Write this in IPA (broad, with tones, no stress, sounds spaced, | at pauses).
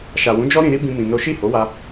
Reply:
ʃ a˨ w ũ˨˦ d͡ʒ ɔ˦ ɾ ĩ˧ ɾ i˦ b ĩ˦ m ĩ˧ n o˦ ʃ i˦˨ h o˨˦ w a˧